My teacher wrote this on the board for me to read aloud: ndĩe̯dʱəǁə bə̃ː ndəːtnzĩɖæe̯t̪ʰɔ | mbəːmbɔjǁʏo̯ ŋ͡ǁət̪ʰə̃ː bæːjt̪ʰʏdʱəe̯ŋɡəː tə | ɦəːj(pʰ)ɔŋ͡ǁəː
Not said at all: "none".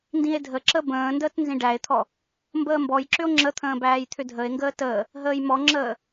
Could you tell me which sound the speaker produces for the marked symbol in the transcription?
m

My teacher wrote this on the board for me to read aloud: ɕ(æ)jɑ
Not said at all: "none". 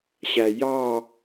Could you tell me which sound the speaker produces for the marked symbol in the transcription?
æ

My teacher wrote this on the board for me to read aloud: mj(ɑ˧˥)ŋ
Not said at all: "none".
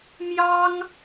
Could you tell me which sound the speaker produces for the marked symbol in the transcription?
ɑ˥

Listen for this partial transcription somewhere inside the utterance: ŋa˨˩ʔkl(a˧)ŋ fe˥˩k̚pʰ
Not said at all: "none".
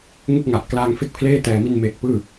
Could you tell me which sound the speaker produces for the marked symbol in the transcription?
aː˧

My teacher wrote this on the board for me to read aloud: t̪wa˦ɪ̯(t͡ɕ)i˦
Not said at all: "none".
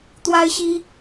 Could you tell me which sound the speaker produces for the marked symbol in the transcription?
ɕ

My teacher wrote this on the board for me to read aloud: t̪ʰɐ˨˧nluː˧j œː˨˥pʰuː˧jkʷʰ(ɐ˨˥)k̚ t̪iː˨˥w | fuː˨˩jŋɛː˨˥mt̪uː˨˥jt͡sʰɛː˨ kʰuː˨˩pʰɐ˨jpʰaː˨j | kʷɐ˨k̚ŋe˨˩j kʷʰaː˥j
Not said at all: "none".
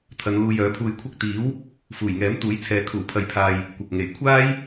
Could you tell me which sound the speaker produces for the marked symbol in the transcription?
ɐ˥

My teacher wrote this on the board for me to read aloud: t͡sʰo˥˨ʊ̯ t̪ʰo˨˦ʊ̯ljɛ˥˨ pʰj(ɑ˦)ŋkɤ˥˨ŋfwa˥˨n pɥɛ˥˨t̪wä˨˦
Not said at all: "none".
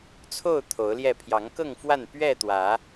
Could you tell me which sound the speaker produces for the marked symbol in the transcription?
ɑ˨˦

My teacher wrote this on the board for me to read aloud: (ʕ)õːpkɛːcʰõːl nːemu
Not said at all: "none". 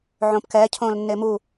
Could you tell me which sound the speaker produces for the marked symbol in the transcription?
ʕ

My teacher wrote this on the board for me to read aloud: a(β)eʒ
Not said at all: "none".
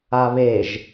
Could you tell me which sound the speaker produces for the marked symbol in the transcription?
β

